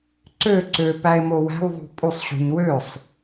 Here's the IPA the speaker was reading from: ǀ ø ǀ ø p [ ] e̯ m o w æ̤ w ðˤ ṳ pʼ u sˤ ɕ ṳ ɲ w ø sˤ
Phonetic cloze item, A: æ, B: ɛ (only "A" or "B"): A